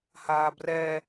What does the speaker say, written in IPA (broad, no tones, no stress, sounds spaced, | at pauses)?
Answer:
h aː b r ɛ